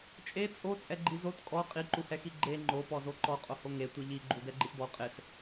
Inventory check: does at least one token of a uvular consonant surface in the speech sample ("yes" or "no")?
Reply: yes